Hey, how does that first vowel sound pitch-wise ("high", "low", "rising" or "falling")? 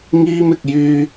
high